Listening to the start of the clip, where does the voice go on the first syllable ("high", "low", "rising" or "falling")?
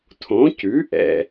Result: rising